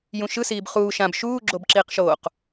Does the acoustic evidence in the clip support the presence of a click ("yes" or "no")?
yes